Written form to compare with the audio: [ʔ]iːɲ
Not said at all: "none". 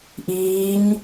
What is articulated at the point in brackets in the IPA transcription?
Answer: ʔ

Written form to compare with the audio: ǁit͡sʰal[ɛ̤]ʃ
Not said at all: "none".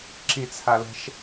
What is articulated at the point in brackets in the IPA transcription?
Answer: ɛ̤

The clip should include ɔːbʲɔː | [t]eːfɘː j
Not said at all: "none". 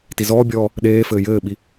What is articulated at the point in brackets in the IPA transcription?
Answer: ɗ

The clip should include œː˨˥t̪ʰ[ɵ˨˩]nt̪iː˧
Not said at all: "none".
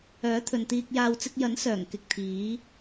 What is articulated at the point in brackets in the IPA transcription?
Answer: ɵ˨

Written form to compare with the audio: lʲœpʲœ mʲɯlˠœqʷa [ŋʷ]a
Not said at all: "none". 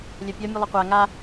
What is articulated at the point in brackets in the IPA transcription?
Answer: ŋ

